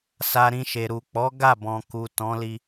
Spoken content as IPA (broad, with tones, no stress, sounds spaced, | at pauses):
s a˧ ɾ ĩ˧ ʃ e˨ ɾ u˨ k͡p ɔ˨˦ ɡ a˦˨ b ɔ̃˨ k u˨ t ɔ̃˨˦ l i˧